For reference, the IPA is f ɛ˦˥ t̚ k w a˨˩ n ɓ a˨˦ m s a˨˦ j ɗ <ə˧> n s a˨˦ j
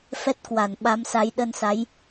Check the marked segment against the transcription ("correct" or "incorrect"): correct